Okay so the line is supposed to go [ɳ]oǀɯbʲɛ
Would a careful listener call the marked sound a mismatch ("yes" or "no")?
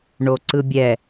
no